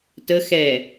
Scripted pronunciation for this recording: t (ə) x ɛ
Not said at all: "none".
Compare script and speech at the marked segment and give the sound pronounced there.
ə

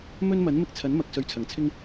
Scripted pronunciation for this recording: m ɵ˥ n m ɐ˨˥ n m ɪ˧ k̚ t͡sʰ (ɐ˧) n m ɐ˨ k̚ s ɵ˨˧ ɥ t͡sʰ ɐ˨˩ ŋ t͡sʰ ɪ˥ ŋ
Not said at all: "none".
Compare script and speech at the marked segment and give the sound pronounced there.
ɐ˨˥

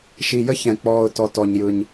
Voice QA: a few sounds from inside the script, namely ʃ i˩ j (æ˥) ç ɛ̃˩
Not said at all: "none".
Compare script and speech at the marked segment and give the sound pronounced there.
ə˥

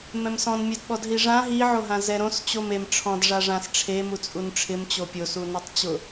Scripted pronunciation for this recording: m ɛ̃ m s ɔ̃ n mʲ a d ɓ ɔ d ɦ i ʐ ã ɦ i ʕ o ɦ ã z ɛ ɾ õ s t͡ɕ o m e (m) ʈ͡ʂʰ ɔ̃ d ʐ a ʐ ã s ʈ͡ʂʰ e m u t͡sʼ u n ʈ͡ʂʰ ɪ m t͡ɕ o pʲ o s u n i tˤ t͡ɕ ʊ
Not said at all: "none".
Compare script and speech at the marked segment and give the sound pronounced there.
m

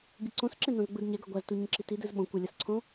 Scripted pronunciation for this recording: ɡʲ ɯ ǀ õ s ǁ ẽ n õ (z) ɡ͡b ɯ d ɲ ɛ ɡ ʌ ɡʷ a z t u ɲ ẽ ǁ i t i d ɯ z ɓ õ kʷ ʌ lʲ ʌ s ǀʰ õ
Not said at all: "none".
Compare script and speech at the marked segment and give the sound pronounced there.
z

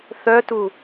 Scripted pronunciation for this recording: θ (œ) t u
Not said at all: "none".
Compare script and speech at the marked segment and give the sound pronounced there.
œ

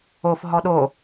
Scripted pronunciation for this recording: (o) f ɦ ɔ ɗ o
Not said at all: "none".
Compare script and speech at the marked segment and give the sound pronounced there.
o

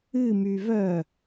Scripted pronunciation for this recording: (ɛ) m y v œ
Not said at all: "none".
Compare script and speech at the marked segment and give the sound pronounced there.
ɨ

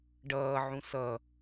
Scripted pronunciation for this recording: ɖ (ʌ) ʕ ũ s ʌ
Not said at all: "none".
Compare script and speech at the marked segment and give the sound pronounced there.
ʌː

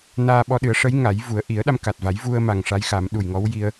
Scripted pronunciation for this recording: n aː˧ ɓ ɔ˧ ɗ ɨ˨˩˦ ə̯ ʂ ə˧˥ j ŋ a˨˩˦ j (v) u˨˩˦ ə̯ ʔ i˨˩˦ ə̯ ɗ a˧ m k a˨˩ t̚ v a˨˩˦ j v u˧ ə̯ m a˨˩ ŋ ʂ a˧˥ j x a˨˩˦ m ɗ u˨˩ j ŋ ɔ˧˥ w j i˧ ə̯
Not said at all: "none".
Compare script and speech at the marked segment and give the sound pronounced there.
v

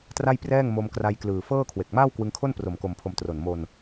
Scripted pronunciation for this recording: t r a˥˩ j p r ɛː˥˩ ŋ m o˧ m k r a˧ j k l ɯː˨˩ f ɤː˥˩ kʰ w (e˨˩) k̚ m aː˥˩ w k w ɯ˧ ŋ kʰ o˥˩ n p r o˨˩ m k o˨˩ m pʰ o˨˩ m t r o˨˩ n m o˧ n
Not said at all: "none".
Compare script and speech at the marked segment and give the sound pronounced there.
e˨˩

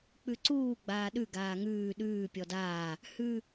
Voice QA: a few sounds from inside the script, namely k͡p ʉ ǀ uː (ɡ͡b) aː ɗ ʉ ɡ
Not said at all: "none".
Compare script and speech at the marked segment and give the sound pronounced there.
ɡ͡b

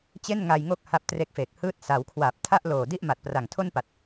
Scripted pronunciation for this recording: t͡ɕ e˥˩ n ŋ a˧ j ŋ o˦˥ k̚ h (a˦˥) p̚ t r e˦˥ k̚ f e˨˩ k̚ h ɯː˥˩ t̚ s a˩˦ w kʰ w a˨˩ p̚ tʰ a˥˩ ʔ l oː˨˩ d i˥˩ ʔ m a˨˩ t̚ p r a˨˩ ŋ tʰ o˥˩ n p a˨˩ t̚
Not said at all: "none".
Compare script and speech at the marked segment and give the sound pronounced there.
a˦˥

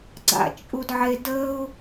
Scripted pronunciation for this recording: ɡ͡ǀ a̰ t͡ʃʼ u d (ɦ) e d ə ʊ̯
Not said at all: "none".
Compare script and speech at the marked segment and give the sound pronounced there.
ʕ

